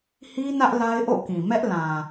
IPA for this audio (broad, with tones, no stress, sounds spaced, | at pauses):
h i˦ n ä˦ ʔ l a˦ ɪ̯ ʔ o̰˦˨ k ĩ˨ m ɛ˦ ʔ l ã˨